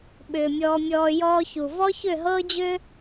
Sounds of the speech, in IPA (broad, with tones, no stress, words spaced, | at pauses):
ɓʏː˨mʲɔː˧mʲɔː˧ jɔː˧çu˨ vɔ˦çʏ˦˨ɦɤː˦d͡ʑʏ˦